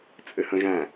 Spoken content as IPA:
t͡sʼ ɘ h ə̃ ʒ æ̃

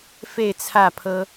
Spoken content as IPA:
f e˥˧ ɪ̯ t͡sʰ ä˥˩ pʰ ɤ˥

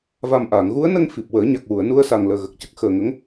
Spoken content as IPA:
v a˨˩ m ʔ aː˨˩˨ ŋ ɣ u˧˥ ə̯ n ə˧ ŋ f i˨˩ p̚ w əː˨˩˦ ɲ a˨˩ k̚ w u˨˩˨ ə̯ n u˧ ə̯ s a˨˩ ŋ l əː˨˩ ɣ ə˨˩ k̚ c ə˦˥ k̚ x əː˨˩ ŋ ə˧˥ ŋ

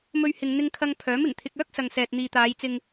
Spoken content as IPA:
m ɵ˧ ɥ h ɪ˨ ŋ n̪ ɪ˧ ŋ kʰ ɐ˧ ŋ pʰ œː˨˥ m ɪ˨˩ ŋ t̪ʰ ɪ˧ k̚ œː˥ k̚ s ɐ˨ ŋ s ɛː˨ t̚ n̪ iː˨ t̪ aː˨˧ j t͡s ɪ˧ ŋ

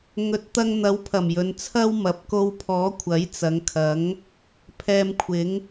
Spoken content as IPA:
ŋ ɵ˨˥ t̚ t̪ ɐ˧ ŋ n̪ ɐ˨˥ w pʰ ɐ˨˩ m j ɵ˨˧ n t͡sʰ ɐ˥ w m ɐ˨˥ p̚ k o˧ w pʰ ɔː˨˥ kʷʰ ɐ˨˥ j t͡s ɐ˨˧ ŋ kʰ ɐ˨˥ ŋ | pʰ ɛː˧ m kʷʰ ɪ˨˥ ŋ

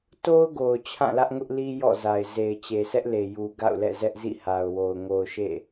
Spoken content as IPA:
t o˦ ʊ̯ ɡ o˨ ʊ̯ t͡ɕʰ ã˦˨ l ä˦ ʔ ŋ ʊ˦ ʔ l i˦ j ɔ̰˦˨ z a˨ ɪ̯ z e˨ ɪ̯ t͡ɕ e˨ s ɛ˦ ʔ l e˨ j u˨ ɡ a̰˦˨ ʊ̯ l ɛ̰˦˨ z ɛ˦ ʔ z ḭ˦˨ h a˨ ʊ̯ w o˨ ʊ̯ ŋ o˨ ʊ̯ ʃ ḛ˦˨

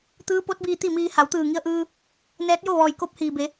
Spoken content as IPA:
t̪ ɯː˧˥ p o˧˥ t̚ b iː˧ t̪ i˥˨ m iː˧ h a˩˧ w t̪ ɯː˧˩ ŋ i˧ ə̯ ʔ ɯː˧ | n ɛː˧˥ t̚ j o˥˨ ʋ ɔː˧˩ j k o˧ p̚ h iː˩ b e˩˧

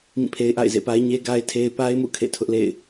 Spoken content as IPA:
m ĩ˦˨ pʰ e˦ ɪ̯ ʔ a̰˦˨ ɪ̯ z ḛ˦˨ p a˦ ɪ̯ ɲ e˦ ɡ a˦ ɪ̯ tʰ e˦ ɪ̯ p a˦ ɪ̯ m ṵ˦˨ kʰ ḛ˦˨ tʰ ʊ˦ ʔ l ḛ˦˨ ɪ̯

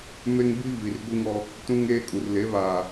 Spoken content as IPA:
m e˦ ŋ b i˦ v i˨ r ɡʷ i˦ ŋ ɔ˦ | t ũ˦ ŋ eː˦ kʼ u˨ r l e˨˦ β aː˨

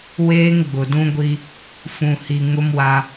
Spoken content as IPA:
w eː˦ ŋ ɡ͡b ʊ˨ d ũ˦ ɡʷ i˦ | f ũ˨ h i˨ ŋ ʊ˦ m w a˦

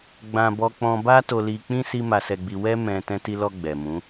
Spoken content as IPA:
ɡ͡b ã˧ b ɔ˧ k͡p ɔ̃˧ b a˦ t o˧ l i˧ k͡p ĩ˦ s i˦ m a˧ s ɛ˧ ɡ͡b i˧ w ɛ˦ m ɛ̃˧ t ɛ̃˧ t i˧ l ɔ˧ ɡ͡b ɛ˨ m ũ˨˦

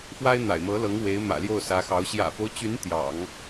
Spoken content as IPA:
f w a˥ ɪ̯ n̪ a̰˨˩ ɪ̯ m ɤ˧˥ l ɤ˧˥ ŋ w e˧˥ ɪ̯ m ä̰˨˩ l j o˥˩ ʊ̯ s ä˧˥ x ɑ˧˥ ʊ̯ ɕ j ä̰˨˩ f o˦ ʊ̯ t͡ɕ y˧˥ n t̪ j ɑ̰˨˩˦ ŋ

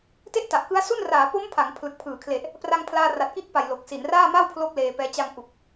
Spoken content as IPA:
t e˥˩ ʔ t a˨˩ ʔ k ɯ˦˥ a̯ s u˥˩ n r aː˩˦ p o˦˥ m pʰ a˩˦ ŋ pʰ l ɯ˨˩ k̚ pʰ ɯː˩˦ kʰ l e˨˩ ʔ | p r a˧ ŋ pʰ l aː˧ r a˨˩ t̚ k i˦˥ ʔ p a˨˩ j l o˨˩ k̚ s i˩˦ n r aː˥˩ m a˥˩ w pʰ l o˦˥ k̚ l eː˧ p ɛː˧ t͡ɕ a˧ ŋ ʔ u˨˩ k̚

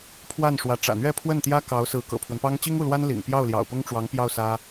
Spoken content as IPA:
pʰ w a˥˩ n ʂ w ä˧˥ ʈ͡ʂ ä̰˨˩ n̪ ɥ ɛ˥˧ pʰ w ə˥˩ n t̪ j ä˥ k ɑ˧˥ ʊ̯ s ɹ̩˧˥ k ɤ̰˨˩ pʰ w ə˦ n p ɑ˥ ŋ t͡ɕ i˥ ŋ u˥˩ l w a˥ n l ḭ˨˩ ŋ p j ɑ˥˩ ʊ̯ l j ɑ̰˨˩ ʊ̯ p ʊ˥ ŋ ʈ͡ʂ w ɑ˧˥ ŋ p j ɑ˥˩ ʊ̯ s ä˥

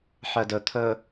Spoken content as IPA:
ħ œ d ɵ t̪ʰ ɵ

